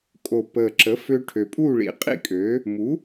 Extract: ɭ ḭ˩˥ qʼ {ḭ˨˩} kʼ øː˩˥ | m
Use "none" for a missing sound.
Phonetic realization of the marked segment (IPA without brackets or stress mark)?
ḭ˥˨